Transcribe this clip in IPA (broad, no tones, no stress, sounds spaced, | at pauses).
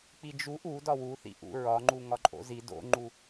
k͡p i d͡ʒ u ʔ u d ɒ w u θ ḭ ʔ ṵ ɹ ɒ ŋ͡ǃ u ŋ ɒ ǃʼ o̰ z i d o̰ ŋ͡ǃ u